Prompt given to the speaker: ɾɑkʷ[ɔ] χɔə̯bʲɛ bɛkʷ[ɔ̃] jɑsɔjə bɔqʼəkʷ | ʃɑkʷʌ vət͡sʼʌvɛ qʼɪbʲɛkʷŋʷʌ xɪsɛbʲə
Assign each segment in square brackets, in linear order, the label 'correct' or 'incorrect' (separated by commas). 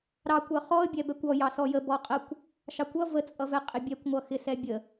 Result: incorrect, incorrect